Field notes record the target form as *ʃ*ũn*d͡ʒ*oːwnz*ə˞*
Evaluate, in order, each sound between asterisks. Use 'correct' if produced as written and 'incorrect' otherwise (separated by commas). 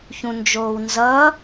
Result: incorrect, correct, incorrect